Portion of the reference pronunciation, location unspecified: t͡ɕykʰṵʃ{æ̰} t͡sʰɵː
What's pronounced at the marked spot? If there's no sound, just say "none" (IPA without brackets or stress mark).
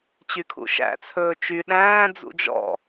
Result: æ̰